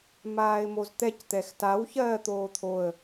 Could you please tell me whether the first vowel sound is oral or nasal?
oral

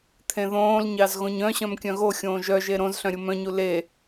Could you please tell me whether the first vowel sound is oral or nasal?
nasal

